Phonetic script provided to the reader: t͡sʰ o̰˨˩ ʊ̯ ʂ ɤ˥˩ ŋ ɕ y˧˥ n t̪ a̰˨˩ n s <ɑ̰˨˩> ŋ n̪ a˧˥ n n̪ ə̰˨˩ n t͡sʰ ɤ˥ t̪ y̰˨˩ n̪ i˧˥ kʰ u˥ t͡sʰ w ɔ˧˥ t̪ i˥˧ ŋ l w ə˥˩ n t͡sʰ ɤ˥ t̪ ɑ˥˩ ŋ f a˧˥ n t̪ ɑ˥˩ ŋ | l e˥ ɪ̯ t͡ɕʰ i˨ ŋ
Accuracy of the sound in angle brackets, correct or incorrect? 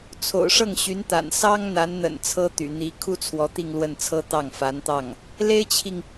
incorrect